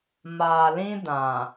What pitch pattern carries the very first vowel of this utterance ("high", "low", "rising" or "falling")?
low